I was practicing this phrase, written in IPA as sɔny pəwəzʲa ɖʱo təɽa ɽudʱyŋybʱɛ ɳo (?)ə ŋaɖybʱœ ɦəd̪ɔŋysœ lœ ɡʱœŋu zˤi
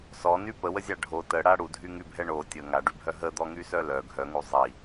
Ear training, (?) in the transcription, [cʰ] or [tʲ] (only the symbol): tʲ